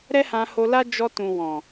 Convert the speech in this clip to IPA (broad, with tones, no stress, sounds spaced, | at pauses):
ɾ ɛ˦ h ã˧ h o˧ l a˦ d͡ʒ ɔ˧ t ũ˨ w ɔ̃˨